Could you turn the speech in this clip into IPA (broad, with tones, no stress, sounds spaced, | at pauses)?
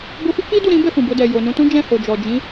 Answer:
b o˧ f i˦ k͡p i˦ d u˦˨ ɾ ĩ˨˦ b ɛ˦˨ f ũ˨ b o˧ d ɛ˨ j o˨ n ũ˧ t ũ˦ d͡ʒ ɛ̃˦˨ h o˨ d͡ʒ ɔ˨ d͡ʒ ĩ˨˦